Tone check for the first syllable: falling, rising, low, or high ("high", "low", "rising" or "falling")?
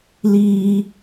high